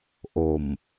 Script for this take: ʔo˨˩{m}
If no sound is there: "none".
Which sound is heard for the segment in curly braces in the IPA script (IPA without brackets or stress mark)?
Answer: m